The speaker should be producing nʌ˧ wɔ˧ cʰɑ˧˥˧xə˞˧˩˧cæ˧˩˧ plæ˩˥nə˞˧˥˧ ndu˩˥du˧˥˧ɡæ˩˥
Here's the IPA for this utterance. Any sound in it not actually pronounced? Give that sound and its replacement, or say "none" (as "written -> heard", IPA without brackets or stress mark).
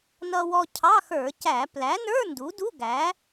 none